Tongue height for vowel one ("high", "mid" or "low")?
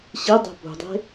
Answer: high